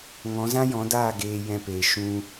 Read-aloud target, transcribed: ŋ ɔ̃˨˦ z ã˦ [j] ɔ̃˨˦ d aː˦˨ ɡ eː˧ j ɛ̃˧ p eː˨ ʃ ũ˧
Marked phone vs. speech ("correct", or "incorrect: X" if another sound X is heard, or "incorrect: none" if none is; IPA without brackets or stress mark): correct